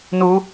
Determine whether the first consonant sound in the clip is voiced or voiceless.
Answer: voiced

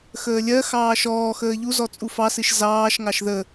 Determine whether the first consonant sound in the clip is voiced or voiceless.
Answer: voiceless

